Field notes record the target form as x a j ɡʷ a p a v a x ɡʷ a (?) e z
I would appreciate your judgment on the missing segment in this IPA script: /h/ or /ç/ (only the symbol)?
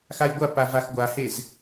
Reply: h